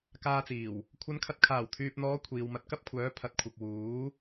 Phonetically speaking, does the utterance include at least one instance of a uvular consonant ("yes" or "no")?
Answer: no